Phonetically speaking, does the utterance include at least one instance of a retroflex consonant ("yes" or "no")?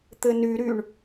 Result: yes